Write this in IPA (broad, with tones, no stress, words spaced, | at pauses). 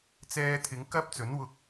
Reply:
t͡sɛː˧t̪ʰɪ˨˧ŋ kɐ˥p̚t͡sɵ˨˥nwʊ˧k̚